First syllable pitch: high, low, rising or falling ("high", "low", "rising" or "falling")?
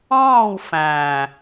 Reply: falling